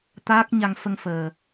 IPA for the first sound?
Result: t̪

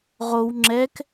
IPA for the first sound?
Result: ʁ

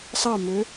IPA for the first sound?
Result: sˤ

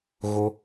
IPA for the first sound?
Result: ɣ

